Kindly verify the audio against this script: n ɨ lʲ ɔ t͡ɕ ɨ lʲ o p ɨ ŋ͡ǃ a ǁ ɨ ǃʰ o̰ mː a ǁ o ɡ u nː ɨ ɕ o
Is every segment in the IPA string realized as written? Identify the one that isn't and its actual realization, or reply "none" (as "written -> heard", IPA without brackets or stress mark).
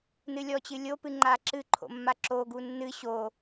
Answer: none